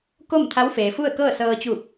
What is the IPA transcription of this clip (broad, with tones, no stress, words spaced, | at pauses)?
ko˥˨mt̪ʰa˧˥wfeː˩fu˥˨ə̯ kɤː˥˨sɤː˧t͡ɕuː˧˩p̚